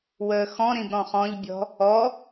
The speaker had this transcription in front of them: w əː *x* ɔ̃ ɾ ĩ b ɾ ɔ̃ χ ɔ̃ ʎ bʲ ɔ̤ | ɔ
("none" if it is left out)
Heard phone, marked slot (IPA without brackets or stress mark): x